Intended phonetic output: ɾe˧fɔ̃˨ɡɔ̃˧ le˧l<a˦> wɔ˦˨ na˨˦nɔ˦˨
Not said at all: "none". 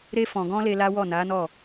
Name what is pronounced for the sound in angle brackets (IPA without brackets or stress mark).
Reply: a˦